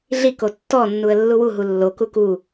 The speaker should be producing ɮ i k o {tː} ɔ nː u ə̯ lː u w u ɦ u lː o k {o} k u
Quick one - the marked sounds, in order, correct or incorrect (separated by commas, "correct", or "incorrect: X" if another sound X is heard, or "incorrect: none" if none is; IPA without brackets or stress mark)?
correct, incorrect: u